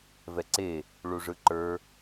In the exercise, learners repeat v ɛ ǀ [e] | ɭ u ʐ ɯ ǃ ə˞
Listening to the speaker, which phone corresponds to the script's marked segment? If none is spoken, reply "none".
e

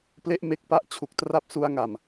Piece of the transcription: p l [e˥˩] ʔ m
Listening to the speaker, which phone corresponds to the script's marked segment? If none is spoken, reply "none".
e˥˩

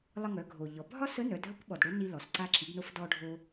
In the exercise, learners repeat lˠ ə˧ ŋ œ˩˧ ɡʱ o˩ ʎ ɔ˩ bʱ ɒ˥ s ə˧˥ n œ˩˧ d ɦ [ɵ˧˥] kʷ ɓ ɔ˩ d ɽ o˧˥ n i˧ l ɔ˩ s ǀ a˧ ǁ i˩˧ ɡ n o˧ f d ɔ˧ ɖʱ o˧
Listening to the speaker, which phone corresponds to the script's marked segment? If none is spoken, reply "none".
ə˧˥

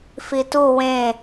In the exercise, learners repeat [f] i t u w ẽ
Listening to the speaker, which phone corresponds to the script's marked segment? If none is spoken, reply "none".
f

